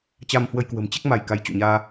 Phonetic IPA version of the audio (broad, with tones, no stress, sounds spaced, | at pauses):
t͡ɕ a˧ m h w ə˧ j k w ə̤˨˩ m t͡ɕ ɛ˦˥ k̚ m a˧ j k a˨˦ j t͡ɕ o̰˧˨ ɲ aː˧